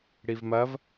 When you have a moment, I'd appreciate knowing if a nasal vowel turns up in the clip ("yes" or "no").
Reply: no